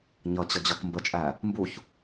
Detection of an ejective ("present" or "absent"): present